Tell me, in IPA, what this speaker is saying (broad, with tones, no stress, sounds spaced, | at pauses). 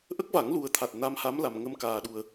ʔ ə˦˥ k̚ v a˨˩˦ ŋ l u˨˩ ə̯ t̪ʰ a˨˩ t̚ n a˧˥ m h a˧˥ m l a˨˩ m ŋ ə˧ m k aː˧ ɗ u˧ ə̯